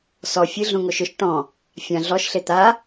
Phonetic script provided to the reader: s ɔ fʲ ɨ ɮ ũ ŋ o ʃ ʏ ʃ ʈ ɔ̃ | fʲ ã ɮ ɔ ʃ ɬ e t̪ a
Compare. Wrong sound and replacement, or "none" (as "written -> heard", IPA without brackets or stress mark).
none